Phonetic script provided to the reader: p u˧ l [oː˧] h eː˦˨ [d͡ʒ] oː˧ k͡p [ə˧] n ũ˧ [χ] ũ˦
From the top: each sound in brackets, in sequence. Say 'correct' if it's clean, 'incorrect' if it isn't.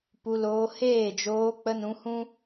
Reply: correct, correct, correct, incorrect: h

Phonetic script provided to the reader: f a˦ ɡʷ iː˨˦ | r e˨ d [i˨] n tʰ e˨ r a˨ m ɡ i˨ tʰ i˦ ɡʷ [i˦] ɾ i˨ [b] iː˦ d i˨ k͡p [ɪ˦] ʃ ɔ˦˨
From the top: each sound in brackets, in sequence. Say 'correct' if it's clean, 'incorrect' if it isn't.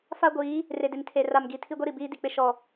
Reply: incorrect: ɪ˨, correct, correct, correct

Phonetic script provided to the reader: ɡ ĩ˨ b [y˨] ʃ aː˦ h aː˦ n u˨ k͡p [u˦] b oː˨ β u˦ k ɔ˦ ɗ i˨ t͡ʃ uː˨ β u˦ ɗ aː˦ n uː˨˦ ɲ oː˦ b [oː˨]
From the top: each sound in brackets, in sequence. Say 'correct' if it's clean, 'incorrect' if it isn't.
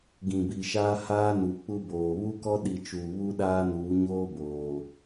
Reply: incorrect: i˨, correct, correct

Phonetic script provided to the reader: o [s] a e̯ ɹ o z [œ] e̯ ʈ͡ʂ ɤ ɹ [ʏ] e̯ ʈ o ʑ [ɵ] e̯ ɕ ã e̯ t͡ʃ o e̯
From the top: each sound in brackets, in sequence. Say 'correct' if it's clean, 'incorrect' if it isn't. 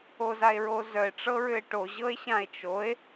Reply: incorrect: z, correct, correct, incorrect: ɤ

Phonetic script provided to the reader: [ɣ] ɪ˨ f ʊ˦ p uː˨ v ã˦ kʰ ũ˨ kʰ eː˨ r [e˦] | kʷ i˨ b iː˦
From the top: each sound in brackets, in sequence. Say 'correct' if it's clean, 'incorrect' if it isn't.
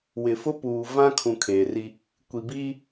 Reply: incorrect: w, incorrect: i˦

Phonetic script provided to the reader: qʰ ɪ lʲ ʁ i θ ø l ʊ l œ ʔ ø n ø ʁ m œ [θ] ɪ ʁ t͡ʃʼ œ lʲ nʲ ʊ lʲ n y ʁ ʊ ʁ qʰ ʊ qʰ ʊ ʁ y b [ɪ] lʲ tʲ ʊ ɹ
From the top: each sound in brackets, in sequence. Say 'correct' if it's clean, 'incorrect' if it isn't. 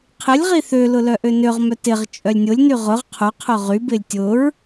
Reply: incorrect: t, correct

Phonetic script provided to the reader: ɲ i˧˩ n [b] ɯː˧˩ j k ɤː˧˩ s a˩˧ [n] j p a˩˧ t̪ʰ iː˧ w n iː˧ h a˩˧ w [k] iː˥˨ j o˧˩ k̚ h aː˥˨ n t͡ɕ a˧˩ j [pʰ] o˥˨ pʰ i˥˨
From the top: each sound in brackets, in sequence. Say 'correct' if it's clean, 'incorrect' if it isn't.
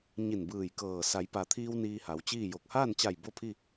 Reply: correct, incorrect: none, incorrect: t͡ɕ, incorrect: b

